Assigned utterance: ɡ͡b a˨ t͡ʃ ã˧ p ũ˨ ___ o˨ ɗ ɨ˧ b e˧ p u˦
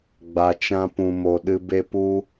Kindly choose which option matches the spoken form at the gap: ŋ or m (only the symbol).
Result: m